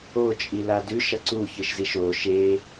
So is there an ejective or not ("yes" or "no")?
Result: yes